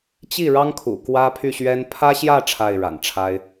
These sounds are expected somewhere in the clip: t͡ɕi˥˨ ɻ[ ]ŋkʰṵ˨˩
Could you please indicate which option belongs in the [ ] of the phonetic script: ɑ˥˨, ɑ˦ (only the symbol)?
ɑ˦